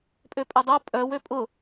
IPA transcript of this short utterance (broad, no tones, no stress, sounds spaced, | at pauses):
pʼ ø pʼ ʏ dˤ o pʼ œ w ø pʼ ʊ